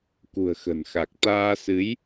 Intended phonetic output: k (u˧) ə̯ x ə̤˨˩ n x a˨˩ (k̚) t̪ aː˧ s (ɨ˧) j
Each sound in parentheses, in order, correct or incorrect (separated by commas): incorrect, correct, incorrect